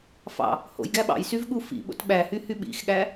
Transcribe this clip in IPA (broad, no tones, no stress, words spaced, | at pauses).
fɑ̰ | ho̰j ɡæɓɑ̰j syvɠufḭ ɓo̰tɓæhy hyɓḭxɠæ